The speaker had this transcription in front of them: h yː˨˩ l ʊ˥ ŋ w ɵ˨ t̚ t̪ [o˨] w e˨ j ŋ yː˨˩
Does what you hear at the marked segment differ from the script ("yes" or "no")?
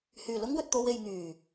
yes